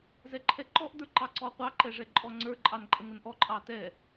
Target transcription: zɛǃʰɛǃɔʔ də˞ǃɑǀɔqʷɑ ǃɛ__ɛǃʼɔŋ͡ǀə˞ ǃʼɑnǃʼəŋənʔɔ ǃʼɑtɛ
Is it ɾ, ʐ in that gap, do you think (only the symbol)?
ʐ